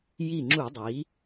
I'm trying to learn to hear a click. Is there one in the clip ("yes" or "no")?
yes